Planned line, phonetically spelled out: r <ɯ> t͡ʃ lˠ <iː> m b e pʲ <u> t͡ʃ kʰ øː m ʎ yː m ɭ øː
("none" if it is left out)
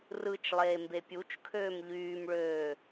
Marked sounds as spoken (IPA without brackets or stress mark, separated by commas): ɯ, eː, u